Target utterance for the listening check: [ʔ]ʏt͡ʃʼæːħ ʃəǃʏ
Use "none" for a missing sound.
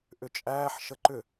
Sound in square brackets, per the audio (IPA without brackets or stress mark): ʔ